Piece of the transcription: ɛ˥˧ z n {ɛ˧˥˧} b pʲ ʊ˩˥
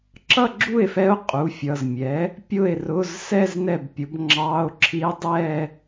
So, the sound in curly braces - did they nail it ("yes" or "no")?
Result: no